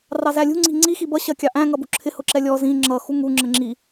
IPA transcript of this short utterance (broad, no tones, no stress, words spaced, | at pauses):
rɑzælʲṳ ŋ͡ǀi̤ŋ͡ǀi xibʌ ɕɜkʲɑʔæ̃ ŋʌbṳǁʰɪ hʊǁɛlʲɔ zĩ ŋ͡ǁʌ xuŋu ŋ͡ǁəŋ͡ǁi